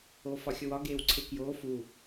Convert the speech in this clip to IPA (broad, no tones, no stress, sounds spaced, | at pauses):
oː f ɒ xʲ o w ɒ ɡ eː w ǀʰ e k j oː f u